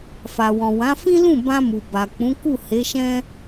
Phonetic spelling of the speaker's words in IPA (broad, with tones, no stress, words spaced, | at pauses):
fa˨wɔ̃˨wã˨˦ fĩ˦lũ˦˨bã˧ mu˨ba˨k͡pũ˨˦ ku˦˨he˨˦ʃɛ̃˦